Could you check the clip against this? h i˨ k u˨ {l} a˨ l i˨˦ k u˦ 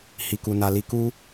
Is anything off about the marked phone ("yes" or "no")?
yes